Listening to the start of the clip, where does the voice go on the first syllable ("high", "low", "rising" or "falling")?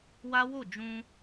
high